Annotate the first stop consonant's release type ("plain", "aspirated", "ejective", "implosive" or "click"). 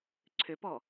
click